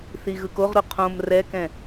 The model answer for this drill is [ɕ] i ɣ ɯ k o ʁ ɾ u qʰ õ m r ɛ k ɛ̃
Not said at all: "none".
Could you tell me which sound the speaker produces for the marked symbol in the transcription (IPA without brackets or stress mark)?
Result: θ